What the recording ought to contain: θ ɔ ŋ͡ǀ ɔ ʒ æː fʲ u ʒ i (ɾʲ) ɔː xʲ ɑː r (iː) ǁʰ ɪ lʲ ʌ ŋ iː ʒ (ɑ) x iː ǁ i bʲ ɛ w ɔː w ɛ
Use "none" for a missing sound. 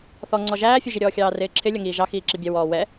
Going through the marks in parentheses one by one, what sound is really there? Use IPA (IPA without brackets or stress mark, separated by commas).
ɾʲ, ɪː, ɑ